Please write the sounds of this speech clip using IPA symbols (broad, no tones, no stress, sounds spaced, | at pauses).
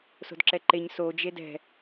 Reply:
s o̤ d ǁ ɛ ǃ e ɲ s o d͡ʒ e d ɛ̤